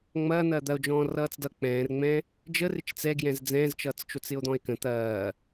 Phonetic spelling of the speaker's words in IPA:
ŋ͡mɐː n̪ɐːd̪ɐo̯ d͡ʒɔ̃ːrʌːt͡sdʌ k͡pɛ̃ːrŋ͡mɛ̃ | d͡ʒərɪt͡ʃ t͡sɛɡjɛ̃z d͡zɛ̃ːzt͡ʃʌːt͡st͡ʃot͡s ɪo̯d̪ɔ̃e̯kə̃ t̪ɐː

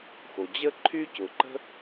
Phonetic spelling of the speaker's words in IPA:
xo˩d͡ʑə˥ ǃʰy˥cʊ˩ǃə̤˥

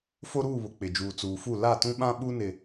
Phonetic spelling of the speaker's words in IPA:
fo˦ɾuː˦˨ βʊ˨k͡pɪ˨d͡ʒuː˨ t͡suː˨fu˦˨ la˦˨tũ˦ɓã˦ ɓu˦nɪ˨

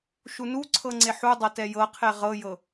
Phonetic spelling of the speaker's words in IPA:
ʃunuǀʰɤ ŋ͡ǀeħudˤɤ tɛjɤqʰe ʁɤjɤ

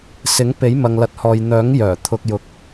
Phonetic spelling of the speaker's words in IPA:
sɪ˨˥ŋ pe˨˥jmɐ˨ŋlɐ˨˥t̚hɔː˨j n̪œː˨˥ŋ jœː˨˩ t̪ʰʊ˧k̚jʊ˧k̚

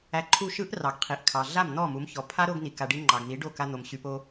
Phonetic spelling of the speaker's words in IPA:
æ˧ǃʰu˦˨ʃɯ˦ʔ rɑ˨ɡqʰi˨ʔkʰɑ˨ ɮa˦˨mn̪ɔ˦˨mu˨˦mçɔ˨ pʰa˦ ɾo˧ɡ ni˨ka˨ɖi˧ ŋ͡ǃɑ˨ɡn̪i˨˦ ɖo˦˨ ka˧n̪o˨mɕy˨po˧

